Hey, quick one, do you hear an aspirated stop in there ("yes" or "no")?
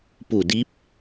no